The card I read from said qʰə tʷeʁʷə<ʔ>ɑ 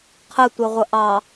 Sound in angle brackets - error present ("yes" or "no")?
no